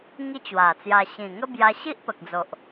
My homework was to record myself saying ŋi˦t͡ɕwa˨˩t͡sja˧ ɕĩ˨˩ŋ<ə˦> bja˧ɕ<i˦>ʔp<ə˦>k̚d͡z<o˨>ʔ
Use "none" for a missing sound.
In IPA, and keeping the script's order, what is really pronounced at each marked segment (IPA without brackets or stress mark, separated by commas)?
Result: ə˦, i˦, ə˨, o˨